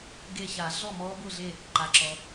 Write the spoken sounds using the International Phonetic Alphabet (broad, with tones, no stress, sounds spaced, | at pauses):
ɡ e˧˩ ç a˨˩˦ ɮ ɔ˥˨ m ɔ˦˥ b ʊ˥˨ ɮ e˥˨ | ǃ a˩ ǁ ɔ˩